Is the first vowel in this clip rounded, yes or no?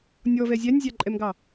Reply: yes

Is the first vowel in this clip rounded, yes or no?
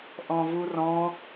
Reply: yes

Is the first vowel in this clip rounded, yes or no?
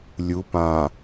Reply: yes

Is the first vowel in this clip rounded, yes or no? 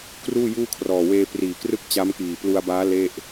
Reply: yes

